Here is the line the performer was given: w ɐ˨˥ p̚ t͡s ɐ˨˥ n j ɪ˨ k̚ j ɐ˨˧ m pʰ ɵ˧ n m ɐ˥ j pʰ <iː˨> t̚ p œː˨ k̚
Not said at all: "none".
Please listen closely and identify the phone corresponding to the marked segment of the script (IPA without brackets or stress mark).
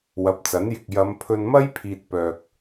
iː˨